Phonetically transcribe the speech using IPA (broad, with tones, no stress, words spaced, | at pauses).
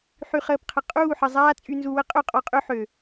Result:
ħy˨χəː˨pqʰə˨ qʼuː˦˨ħə˨ zˤaː˦ t͡sʼy˧nzu˧wə˦ qʼø˦˨qʼɔ˧qʼø˦ ħø˨